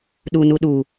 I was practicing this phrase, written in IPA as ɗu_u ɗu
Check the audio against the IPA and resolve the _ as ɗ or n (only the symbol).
n